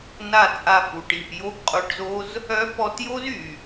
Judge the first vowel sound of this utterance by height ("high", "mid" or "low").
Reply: low